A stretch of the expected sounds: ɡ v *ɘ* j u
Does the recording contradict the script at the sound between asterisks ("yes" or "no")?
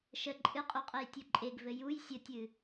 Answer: no